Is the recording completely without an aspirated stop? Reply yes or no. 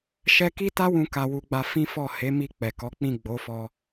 yes